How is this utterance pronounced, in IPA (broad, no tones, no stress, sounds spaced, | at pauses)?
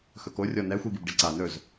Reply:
x ɵ k o rʲ ɔ n ɛ xʷ i ɡ i b ɖ i ǀ a n ɵ z